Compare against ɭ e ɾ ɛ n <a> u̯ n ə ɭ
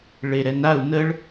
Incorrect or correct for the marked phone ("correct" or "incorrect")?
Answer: correct